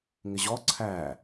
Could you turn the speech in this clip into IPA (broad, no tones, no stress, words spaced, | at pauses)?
ŋɪʑɔ ǀʰæ